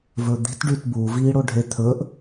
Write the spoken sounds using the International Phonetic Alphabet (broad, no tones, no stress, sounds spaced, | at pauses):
v ɵ d̪ i̤ t ɖ y t b u v iː ɽ o ɖʱ e t̪ʰ ɵ ʔ